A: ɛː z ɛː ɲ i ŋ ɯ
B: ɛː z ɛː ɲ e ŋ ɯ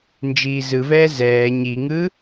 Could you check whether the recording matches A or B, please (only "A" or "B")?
A